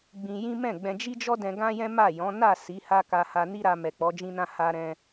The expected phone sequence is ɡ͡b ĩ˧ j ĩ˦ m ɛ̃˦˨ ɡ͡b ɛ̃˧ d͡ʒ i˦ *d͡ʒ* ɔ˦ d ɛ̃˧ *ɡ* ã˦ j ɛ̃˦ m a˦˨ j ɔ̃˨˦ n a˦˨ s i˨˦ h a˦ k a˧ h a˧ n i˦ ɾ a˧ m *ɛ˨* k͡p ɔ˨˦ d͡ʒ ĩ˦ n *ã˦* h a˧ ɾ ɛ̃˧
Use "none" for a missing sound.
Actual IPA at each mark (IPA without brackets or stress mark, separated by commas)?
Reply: d͡ʒ, ɡ, ɛ˨, ã˦